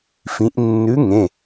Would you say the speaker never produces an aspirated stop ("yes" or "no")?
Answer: yes